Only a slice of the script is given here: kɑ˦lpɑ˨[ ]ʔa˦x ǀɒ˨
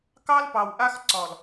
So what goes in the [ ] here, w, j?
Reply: w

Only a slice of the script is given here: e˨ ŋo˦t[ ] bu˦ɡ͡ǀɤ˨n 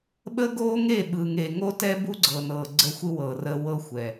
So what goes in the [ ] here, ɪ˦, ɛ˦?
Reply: ɛ˦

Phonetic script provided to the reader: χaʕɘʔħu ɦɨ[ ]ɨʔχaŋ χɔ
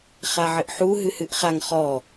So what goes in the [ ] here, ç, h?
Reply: h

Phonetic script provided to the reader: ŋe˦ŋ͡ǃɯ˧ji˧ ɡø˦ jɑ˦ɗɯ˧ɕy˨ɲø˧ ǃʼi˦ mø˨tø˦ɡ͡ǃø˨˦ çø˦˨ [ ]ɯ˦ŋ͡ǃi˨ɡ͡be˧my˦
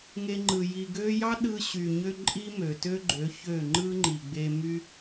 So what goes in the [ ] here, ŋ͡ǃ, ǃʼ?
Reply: ŋ͡ǃ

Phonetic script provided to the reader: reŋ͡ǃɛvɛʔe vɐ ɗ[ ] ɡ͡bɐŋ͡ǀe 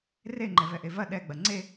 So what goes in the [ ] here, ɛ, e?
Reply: ɛ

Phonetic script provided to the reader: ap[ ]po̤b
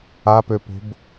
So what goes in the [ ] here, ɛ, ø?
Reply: ø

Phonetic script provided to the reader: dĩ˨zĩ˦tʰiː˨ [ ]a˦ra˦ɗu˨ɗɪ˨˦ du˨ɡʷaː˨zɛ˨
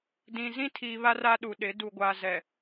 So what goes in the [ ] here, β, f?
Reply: β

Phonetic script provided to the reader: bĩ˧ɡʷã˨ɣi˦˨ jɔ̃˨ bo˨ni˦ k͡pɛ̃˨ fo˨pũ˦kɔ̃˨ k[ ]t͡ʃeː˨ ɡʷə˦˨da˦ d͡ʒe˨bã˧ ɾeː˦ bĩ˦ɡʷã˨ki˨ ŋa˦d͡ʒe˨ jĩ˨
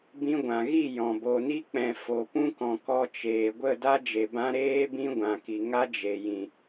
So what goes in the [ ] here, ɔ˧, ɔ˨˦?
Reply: ɔ˧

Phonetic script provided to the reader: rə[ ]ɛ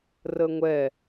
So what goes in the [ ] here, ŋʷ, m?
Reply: ŋʷ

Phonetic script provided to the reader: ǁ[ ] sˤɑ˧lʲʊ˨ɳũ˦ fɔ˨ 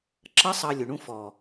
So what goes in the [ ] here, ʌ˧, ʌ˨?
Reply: ʌ˧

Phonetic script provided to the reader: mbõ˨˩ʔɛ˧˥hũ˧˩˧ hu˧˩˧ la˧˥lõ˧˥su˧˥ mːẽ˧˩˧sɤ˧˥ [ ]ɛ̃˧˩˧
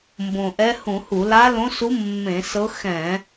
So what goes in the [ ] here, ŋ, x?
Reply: x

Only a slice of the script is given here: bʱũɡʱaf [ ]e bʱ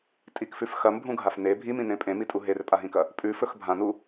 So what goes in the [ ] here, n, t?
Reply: n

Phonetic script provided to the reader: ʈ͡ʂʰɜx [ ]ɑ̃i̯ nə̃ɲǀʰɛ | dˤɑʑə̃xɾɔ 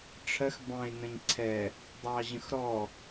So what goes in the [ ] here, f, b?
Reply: b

